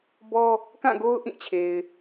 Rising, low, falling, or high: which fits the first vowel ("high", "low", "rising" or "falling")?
high